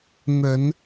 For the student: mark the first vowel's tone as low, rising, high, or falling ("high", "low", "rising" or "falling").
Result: rising